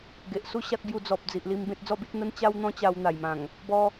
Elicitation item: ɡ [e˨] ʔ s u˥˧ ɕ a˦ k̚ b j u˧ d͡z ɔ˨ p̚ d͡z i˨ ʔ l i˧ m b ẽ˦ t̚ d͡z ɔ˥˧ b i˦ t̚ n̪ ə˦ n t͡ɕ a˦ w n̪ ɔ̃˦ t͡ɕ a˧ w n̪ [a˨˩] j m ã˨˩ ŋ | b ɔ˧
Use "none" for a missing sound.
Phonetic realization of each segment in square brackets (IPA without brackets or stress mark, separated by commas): e˨, a˨˩